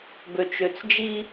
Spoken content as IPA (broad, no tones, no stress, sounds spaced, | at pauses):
b ø t͡ʃ ø t͡s d͡ʒ i